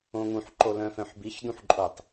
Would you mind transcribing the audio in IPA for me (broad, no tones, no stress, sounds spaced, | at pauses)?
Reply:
õ ŋ ũ ħ ǃ o l œ̃ f œ̃ ħ b i ç d ũ ħ ǃʼ o tˤ